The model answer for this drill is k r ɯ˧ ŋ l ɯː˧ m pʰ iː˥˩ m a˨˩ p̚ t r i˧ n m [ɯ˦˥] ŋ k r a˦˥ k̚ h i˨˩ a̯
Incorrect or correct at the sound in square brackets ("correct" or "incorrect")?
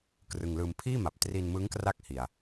correct